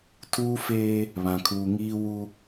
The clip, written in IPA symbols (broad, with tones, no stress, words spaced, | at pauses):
tʰuː˦feː˦ | βã˨kʰuː˨ŋiː˦ wu˦